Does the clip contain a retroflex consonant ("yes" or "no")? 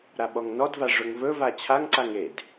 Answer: yes